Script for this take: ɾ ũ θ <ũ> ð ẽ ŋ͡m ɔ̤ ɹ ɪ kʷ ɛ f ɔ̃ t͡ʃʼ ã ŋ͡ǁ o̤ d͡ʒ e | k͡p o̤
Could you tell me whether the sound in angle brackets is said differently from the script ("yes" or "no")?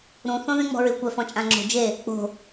yes